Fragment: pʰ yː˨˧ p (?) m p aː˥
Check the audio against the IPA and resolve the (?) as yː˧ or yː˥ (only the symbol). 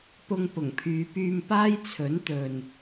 yː˧